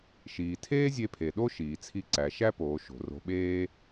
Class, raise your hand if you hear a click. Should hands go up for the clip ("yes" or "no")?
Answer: yes